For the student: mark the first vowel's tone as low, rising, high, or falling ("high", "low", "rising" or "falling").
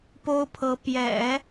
high